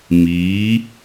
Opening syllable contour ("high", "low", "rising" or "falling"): rising